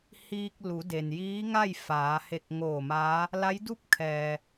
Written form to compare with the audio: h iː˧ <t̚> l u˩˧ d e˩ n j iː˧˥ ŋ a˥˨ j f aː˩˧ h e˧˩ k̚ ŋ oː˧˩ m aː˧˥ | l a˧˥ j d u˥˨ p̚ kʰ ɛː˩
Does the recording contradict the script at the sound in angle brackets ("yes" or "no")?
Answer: yes